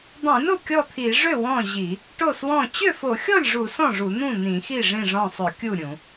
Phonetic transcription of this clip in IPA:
dˤ ĩ˧˩˧ n o˥˩ kʲ ɔ˥˩ t̪ʰ i˧˩˧ ʐ ø˥˩ w ɔ̃˥˩ ʑ i˧˩˧ | ʈ o˥˩ s w ɔ̃˥˩ t͡ɕ ø˥˩ f o˧˩˧ xʲ ɔ˥˩ lʲ ʐ u˧˩˧ s ɔ̃˥˩ ʐ u˧˩˧ n̪ ũ˥˩ n̪ ĩ˧˩˧ x i˥˩ ʐ ĩ˥˩ ʐ ɔ̃˥˩ sˤ ø˧˩˧ kʲ u˥˩ ɾʲ ũ˧˩˧

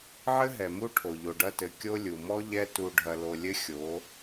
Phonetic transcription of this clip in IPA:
ʕ ɘ˦ ɦ ɛ˨ m u˦ ʈʰ o˨ ʎ o˨ ɖ ɐ˦ t ɘ˨ kʲ o˦ lʲ u˨ m ɔ˦ ʎ ɛ˦ t u˨ ɖʱ ɐ˨ l o˨ lʲ ɘ˦ xʲ o˨˦

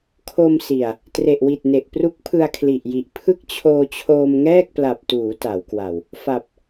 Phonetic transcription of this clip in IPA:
kʰ o˧ m s i˨˩ a̯ | t r e˨˩ ʔ w i˨˩ t̚ n e˨˩ ʔ p r u˦˥ k̚ pʰ ɯ˧ a̯ kʰ l i˨˩ ʔ j i˨˩ ʔ pʰ ɯ˥˩ k̚ t͡ɕʰ oː˧ t͡ɕʰ oː˧ m ŋ ɛː˥˩ k̚ p l a˨˩ p̚ t uː˩˦ t a˩˦ w k w a˨˩ w | f a˨˩ p̚

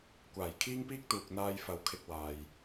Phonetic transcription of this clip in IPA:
kʷ aː˨˩ j kʰ iː˥ ŋ p iː˥ k̚ t̪ uː˨ k̚ n̪ aː˧ j f ɐ˨ w kʰ ɪ˧ k̚ w aː˨ j

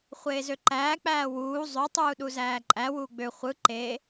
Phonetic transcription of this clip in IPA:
χʷ eː z ø ǃ æː k͡p æː w uː zˤ ø tˤ uː ɗ u z æː ǃʼ æ w uː ɡ͡b ø χʷ ɯ ǃ e

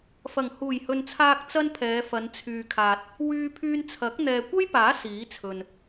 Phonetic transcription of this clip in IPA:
f ɐ˨˩ ŋ h uː˨˩ j h ɵ˨ n t͡sʰ aː˧ k̚ t͡s ɐ˥ n pʰ ɛː˨˧ f ɐ˨˧ n t͡sʰ yː˨ kʰ aː˨ t̚ | w yː˧ pʰ yː˧ n t͡sʰ ɐ˨˥ k̚ n̪ ɛː˨ kʷ ɐ˥ j p aː˨˥ s iː˨˥ t͡sʰ ɵ˨ n

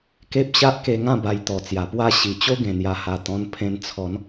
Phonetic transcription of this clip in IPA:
k e˦ p̚ ɕ a˦ ʔ k e˧ ŋ ã˥˧ b a˧ j t̪ ɔ˨˩ t͡s j a˨˩ p w a˥˧ ɕ i˨˩ t͡ɕ o˦ ɡ ẽ˨˩ n̪ j a˨˩ h a˨˩ t̪ ɔ̃˧ n pʰ ẽ˧ n t͡sʰ ɔ˨˦ n

